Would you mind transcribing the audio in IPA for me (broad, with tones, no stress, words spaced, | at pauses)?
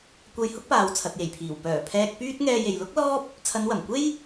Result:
kʷɐ˨j hʊ˥k̚paː˨w t͡sʰɐ˨t̚je˨˩jpʰiː˨˩w pœː˨˩pʰɛː˧k̚ pyː˥t̚ ŋɛː˧je˨jlʊ˥k̚lɔː˥p̚ | t͡sʰɐ˨˧nwɐ˨˩mkʷe˥j